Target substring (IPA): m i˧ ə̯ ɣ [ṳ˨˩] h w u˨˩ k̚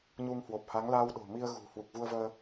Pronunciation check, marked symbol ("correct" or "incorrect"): correct